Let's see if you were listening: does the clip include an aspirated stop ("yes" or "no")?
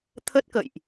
yes